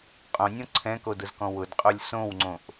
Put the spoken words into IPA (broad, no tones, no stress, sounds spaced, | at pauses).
qʼ õ nʲ õ ǀʰ ɛ̃ k o d ʊ z k ɔ̃ w ʊ d qʼ o lʲ s õ w ŋ͡ǀ õ ʔ